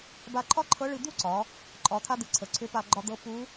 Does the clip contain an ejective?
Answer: yes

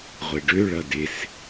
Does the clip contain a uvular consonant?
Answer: yes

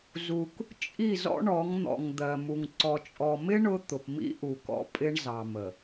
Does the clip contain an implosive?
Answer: no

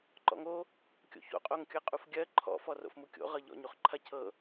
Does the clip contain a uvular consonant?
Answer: yes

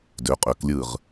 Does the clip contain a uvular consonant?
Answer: yes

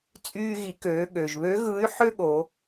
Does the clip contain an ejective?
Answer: yes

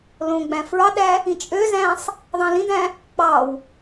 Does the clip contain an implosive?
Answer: yes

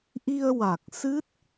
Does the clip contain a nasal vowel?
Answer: no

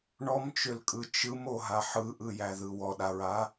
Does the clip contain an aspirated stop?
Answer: no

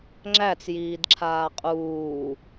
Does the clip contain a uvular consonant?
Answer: yes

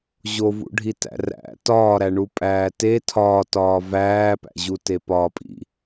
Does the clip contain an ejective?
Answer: yes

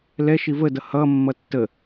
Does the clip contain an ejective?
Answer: no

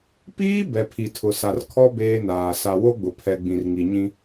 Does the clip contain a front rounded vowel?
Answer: no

